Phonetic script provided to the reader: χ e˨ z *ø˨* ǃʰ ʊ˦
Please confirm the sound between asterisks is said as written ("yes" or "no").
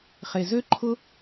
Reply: no